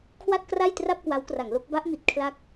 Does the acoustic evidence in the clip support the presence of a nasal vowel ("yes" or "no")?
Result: no